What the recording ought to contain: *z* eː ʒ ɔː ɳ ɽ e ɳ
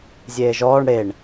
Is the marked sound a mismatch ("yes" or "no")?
yes